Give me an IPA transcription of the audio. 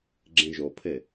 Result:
ɡ͡ǁ ẽ ʒ o pʰ e

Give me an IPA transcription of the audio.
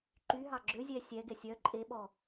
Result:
ǃ y ɦ ɑ ɡ͡ǁ ø zʲ ɛ sʲ ɛ ɡ ɛ sʲ œ ǃʼ e ɓ ɔ

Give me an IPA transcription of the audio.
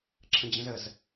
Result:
ǁʰ ə̃ d͡ʑ ə̃ z ə z

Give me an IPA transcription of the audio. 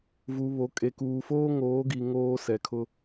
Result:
v u˨ β o˨ kʼ e˨ k uː˨ f oː˦ ŋ oː˨˦ ɡ i˨ ŋ oː˦ s ɛ˨ kʰ ʊ˦

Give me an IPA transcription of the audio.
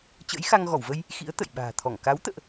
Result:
t͡ɕ ə̰˧˥ j x a˧ ŋ ɣ ɔ˧˩ w v ə˧ j | x ḭ˧˥ ə̯ t̪ ə̰˧˨ j ɓ a̤ː˨˩ t̪ʰ ɔ˧˩ ŋ k a˨˦ w t̪ ə̰ː˧˨ ʔ

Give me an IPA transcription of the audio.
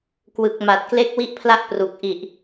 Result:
k w ɯ˨˩ k̚ m a˨˩ t̚ k l e˥˩ k̚ w i˥˩ ʔ pʰ l a˥˩ ʔ p r u˨˩ k̚ ʔ i˨˩ ʔ

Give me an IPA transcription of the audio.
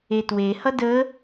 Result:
e t w e h ʌ d ə

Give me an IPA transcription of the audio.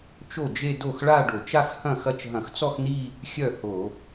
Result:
t͡ʃ o˥˩ d͡ʒ e˥˧ d o˥˩ x ɭ a˥˧ ɖ o˧˩˧ t͡ʃ a˥˧ x h ɐ̃˥˩ x ɐ˥˩ t͡ʃ ɦ ɐ̃˧˩˧ x t͡s ɔ˥˧ x n i˥˧ | xʲ œ˥˩ h o˧˩˧

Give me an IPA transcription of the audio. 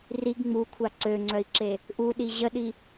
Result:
r i ɡ ŋ͡m u kʷʰ a ǀ ø ŋ͡ǀ œ i̯ ǁ e | ʔ u ɗ i ʑ ə ɗ i

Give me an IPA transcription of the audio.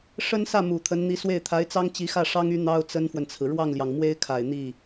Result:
ʂ ə˥ n s ä˥˩ m u˨˩ t̪ʰ ə˧˥ n n̪ i˧˥ s w e˥˩ ɪ̯ t̪ʰ a˧˥ ɪ̯ t͡s ɑ˥ ŋ t͡ɕ i˧˥ x ä˥˩ ʂ ɑ˥ ŋ y˧˥ n̪ ɑ˥ ʊ̯ t͡s ə˥ n f w ə˨ n t͡sʰ ɹ̩˩ ɻ w ɑ˥˩ ŋ l j ɑ˩ ŋ m w e˥ ɪ̯ kʰ a˨˩ ɪ̯ n̪ i˥˩

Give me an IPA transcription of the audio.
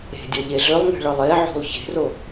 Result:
e̤ dʲ ʌ ʎ e ɮ ʏ lˠ ŋ e̤ ɭ ʌ lˠ e ʕ o̤ lˠ ç e̤ r o

